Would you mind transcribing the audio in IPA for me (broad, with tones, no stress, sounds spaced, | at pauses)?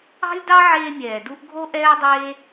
ɑ̤˥ lʲ d ɑ˥ ʕ eː˦ mʲ ɛː˨ d u˥ ʔ ɡʱ o˥ ʔ ɛː˥ dˤ eː˥